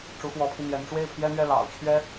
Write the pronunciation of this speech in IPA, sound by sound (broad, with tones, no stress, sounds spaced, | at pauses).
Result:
ʈ͡ʂ u˧˥ x w ɔ˧˥ pʰ i˧ n̪ j ɛ˧˥ n ʈ͡ʂ w e˥˩ ɪ̯ pʰ j ɛ˥ n̪ ɥ ɛ˥˩ l ɑ̰˨˩ ʊ̯ t͡ɕʰ ɥ ɛ˥